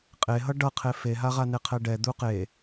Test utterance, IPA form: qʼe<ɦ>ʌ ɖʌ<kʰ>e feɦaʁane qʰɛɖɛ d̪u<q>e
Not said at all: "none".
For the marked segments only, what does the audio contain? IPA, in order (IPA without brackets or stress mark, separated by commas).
ɦ, qʰ, q